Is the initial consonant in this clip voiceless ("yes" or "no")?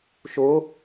yes